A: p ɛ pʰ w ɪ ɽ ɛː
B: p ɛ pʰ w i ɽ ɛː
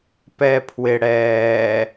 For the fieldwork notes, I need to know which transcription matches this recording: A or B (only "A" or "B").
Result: A